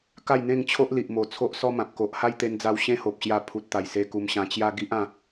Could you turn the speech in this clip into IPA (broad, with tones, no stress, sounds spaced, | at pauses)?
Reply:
k a˥˧ j n̪ ẽ˥˧ ŋ t͡ɕʰ o˦ ʔ l i˨ ʔ m o˨˩ t͡sʰ o˦ ʔ s ɔ˦ m ã˨ p̚ k o˨ ʔ h a˦ j t̪ e˧ n d͡z a˧ w ɕ ẽ˦ h o˨ p̚ ɕ j a˧ pʰ u˨ t̚ t̪ a˨˩ j s e˧ k u˧ m ɕ ã˧ t͡ɕ j a˦ ɡ i˦ ʔ ã˧